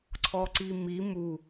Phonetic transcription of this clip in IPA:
ǀʰ ɔ ǀ i m i m u

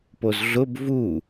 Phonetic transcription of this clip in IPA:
p o z ɮ ʊ b v u

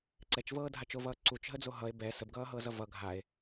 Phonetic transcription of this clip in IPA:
ǀ ɛ t͡ʃ v ɤː dʱ a t͡ʃ o v ʌː ǀ u t͡ʃ ɦ ə d͡z o ɦ ʌ e̯ b ɛ s ə b ɡ ʌː ɦ ɤː z ʌ v ʌ ɡʱ a e̯

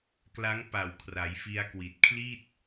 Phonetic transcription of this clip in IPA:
k l a˦˥ ŋ p a˨˩ w kʰ r a˩˦ j f i˧ a̯ k w i˨˩ t̚ kʰ l i˥˩ t̚

